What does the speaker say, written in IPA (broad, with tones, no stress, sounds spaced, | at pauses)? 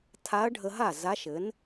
tʰ a˧˥ ɐ̯ ɖʱ ə˧ ɦ a˥˩ z a˧˥ ʃ ɘ˩˥ n